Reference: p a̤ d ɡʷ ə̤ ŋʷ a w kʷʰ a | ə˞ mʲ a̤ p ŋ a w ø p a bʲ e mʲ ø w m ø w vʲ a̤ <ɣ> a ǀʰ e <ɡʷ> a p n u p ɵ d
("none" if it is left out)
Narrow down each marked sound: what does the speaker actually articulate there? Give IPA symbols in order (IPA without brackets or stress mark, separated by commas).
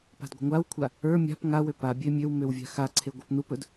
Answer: x, ɡʷ